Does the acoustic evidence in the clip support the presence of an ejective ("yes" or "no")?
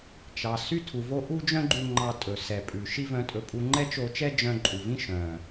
yes